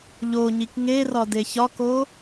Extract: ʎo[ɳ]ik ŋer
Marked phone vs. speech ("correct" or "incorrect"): incorrect